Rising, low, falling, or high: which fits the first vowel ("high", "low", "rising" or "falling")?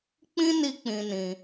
high